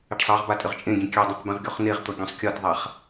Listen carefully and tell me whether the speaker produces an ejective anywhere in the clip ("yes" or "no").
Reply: yes